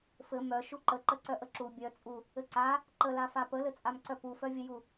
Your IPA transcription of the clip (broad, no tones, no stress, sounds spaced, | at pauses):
f ɘ m œ ʃ u ǃ ə ǃ ə ǀ œ ʔ ə ǁ u bʲ œ t͡sʼ u | ɘ ǀ a | ǃ ə l a f a p ə l ɘ t͡sʼ a m ǀ œ p u f œ vʲ ɘ j u